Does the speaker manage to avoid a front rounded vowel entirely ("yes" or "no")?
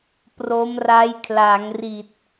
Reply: yes